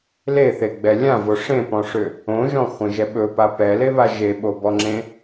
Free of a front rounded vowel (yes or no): no